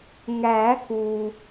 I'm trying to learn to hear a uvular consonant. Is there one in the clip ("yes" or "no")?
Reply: no